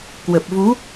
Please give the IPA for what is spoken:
k w ə˨˩ p̚ v u˨˦

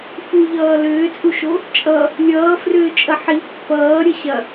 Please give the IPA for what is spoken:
f u ʎ ʌː l ʏː t͡sʼ u ʃ o | t͡ʃʼ ʌ | lʲ ʌː f r ʏː t͡ʃʼ ɐ ħ i pː ʌː ɾʲ ə ɕ ɐ

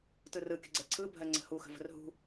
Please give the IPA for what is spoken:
t ɯ r ɯ kʲ ə ɡ͡ǀ ɛ ǀʰ ɯ bʱ ɜ ŋ͡ǀ ə̤ h u x ə̤ v ə̤ r ɦ ṳ

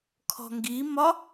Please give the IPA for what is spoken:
kʰ ɔ̤ ŋ ɡ i m ɒ

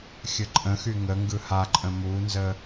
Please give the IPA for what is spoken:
xʲ ə ǃʼ ə̃ x y ŋ ə ŋ ɡ ɯ h a ǃʼ ə̃ m u n z ə

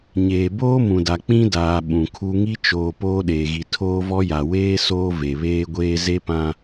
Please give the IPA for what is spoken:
ɲ eː˨ b oː˦ m ũ˨ d a˨ k͡p ĩ˦ d aː˨ ɓ ũ˨ kʰ u˦ ŋ i˦ t͡ʃ oː˨ p oː˦ ɗ eː˨ ɣ i˨ tʰ oː˦ v ɔ˦ j a˨ w eː˦ s oː˦ v e˨ β eː˦ ɡʷ eː˦ z e˦ p ã˦

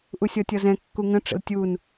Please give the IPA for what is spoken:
ʔ u sʲ ɔ tʲ ɔ z ɛ̃ kː u ŋ ə̃ ʈ͡ʂ ə̰ l tʲ u n

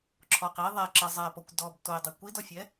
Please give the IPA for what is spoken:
ǁʰ ɔ q i ðˤ ɛ ǁ ə zˤ ɛ p ɔ kʷ d ɔ b t o ɪ̯ dˤ i kʷ i d ɔ fʲ ɛ

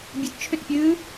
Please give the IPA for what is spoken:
bʲ ɨ t t͡ʃʰ ʏ t pʲ ɨː

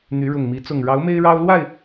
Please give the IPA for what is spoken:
n̪ y˨˦ ɻ ʊ˨˩ ŋ m i˨˦ t͡s ʊ˨˩ ŋ ɻ ɑ˨˦ ʊ̯ m e˦ ɪ̯ ɻ ɑ˦ ʊ̯ l w a˥˨ ɪ̯

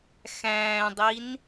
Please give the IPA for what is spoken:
x æ̃ː dˤ i n

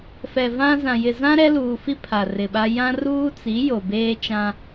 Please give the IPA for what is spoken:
f ɛ˨ v ã˦ z ã˨ j ɪ˨ z ã˦ ɾ ɛ˦ l uː˨ f i˦ pʰ a˨ r ɪ˨ ɓ a˦ j ã˦ r uː˦ t͡s i˨˦ j o˨ b eː˦ t͡ʃ ã˦

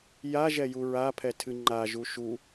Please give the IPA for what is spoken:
j a ʒ ɛ j u ɹ a pʰ ɛ tʰ ɨ ŋ͡ǃ a ʒ u ʃ u

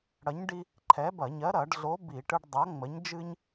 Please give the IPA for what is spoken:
ɽ ɐ˨˥ ɲ ɖ i˦ | ǃʰ ɛ˨˥ b ɐ˧˩˧ ɲ ɜ˨˥ ɾ ɐ˧˩˧ ɖ ɮ o˨˥ b i˧˩˧ ʈ ɨ˦ ɖ dˤ ɐ˨˥ ŋ͡m ə˨˥ ɲ d͡ʒ ɨ˦ ɲ

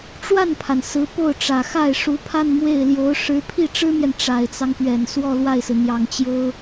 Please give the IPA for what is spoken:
ʈ͡ʂ w a˥˩ n pʰ a˩ n s ɹ̩˧˥ p o˥˩ ʊ̯ ʈ͡ʂ ä˨˩ x a˥˩ ɪ̯ ʂ u˧˥ pʰ a˥˧ n m w e˥˩ ɪ̯ l j o˧˥ ʊ̯ ʂ ɻ̩˧˥ pʰ i˥˩ ʈ͡ʂ ɻ̩˥ m j ɛ˨ n ʈ͡ʂ a˨˩ ɪ̯ t͡s ɑ˦ ŋ p ɥ ɛ˨˩ n s w ɔ˥˧ l w a˥˩ ɪ̯ s ɹ̩˩ n̪ j ɑ˨˩ ŋ t͡ɕ j o˥ ʊ̯

